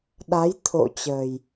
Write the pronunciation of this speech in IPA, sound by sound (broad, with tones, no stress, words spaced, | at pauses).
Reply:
ɗa˨˦jt̪ʰo̰˧˨t͡ɕəː˨˩j